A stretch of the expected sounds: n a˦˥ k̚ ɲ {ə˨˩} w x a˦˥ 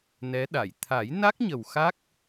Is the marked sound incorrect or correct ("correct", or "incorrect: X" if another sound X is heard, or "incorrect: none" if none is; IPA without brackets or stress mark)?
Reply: correct